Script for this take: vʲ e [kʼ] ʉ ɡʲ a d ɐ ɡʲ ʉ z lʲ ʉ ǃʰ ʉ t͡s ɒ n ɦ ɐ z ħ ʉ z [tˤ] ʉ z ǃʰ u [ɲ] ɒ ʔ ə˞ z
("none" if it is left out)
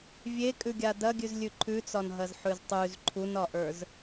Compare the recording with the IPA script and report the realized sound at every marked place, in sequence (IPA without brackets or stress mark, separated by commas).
kʼ, tˤ, n